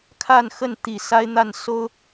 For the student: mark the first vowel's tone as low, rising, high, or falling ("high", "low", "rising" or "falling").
falling